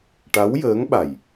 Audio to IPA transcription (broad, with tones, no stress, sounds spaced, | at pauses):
ʈ a˧˥ w j əː˧˥ ŋ ɓ a˨˩ j